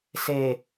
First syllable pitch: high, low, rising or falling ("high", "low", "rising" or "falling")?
low